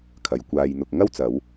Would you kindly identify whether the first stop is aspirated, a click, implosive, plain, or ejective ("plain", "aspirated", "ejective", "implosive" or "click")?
aspirated